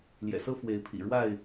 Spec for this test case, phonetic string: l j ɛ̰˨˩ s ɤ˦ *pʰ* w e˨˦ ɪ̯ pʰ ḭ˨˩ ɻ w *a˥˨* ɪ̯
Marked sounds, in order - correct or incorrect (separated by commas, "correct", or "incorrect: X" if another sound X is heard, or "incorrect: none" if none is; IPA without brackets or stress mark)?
incorrect: f, correct